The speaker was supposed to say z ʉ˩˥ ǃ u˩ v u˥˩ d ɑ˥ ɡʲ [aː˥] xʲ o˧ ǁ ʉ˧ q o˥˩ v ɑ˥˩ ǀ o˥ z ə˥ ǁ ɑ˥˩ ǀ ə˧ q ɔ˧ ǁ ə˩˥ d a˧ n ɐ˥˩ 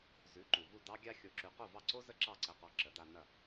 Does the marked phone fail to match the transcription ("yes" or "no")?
yes